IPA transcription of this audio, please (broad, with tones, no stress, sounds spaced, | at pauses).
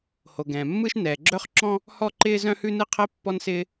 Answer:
h o˩ ɡ ɛ̃ː˩ mː ɯ˥ ʃ n ɛː˩ ɡ͡ǁ œ˥ χ ǁ ɔ̃˥ | h ɔ˥ ǃ ɪː˥ z œ̃˥ h ʉ˥ n ɯ˥ qʰ ɛ˥ pː ɔ˥ n s ɪː˥